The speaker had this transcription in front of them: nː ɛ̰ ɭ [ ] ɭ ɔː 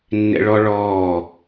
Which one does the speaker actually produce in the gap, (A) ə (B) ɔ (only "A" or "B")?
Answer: B